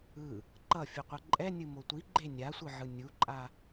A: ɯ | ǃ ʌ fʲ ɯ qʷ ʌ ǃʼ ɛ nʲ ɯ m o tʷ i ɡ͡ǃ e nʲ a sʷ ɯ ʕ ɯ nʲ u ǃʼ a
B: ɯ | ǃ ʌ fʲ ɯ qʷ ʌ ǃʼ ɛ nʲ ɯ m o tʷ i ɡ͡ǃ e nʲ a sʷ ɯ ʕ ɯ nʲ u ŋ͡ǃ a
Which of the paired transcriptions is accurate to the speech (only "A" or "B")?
A